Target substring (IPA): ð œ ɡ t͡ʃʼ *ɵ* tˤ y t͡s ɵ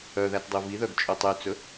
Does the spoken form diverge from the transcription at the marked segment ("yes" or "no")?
no